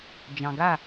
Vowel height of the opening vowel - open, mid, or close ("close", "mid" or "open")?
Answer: open